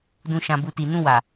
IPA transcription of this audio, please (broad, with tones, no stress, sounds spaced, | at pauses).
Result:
d ũ˨ ʃ ã˨ b u˨ t i˨ n ũ˧ w a˨